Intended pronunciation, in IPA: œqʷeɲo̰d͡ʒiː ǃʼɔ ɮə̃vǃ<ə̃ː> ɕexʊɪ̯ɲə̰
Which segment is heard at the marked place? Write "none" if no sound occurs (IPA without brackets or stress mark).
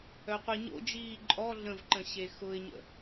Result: ə̃